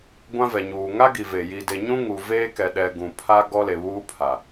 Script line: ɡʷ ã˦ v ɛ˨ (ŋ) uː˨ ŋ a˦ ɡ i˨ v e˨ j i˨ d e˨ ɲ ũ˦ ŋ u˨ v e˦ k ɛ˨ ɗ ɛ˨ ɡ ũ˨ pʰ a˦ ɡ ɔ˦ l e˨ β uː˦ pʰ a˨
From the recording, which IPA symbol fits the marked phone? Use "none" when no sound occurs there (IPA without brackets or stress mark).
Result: ɲ